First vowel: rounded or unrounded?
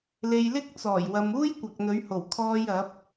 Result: unrounded